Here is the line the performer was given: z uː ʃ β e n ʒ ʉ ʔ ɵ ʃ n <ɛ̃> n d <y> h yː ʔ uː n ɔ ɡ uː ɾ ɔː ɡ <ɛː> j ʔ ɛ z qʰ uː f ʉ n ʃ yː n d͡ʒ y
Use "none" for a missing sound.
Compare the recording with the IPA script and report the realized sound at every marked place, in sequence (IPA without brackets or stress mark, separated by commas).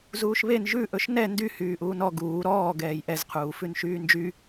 ɛ, y, ɛː